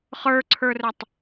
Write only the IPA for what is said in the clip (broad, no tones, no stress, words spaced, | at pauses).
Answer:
χə˞ǀʰə˞rətˤ